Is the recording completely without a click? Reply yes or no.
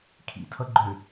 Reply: no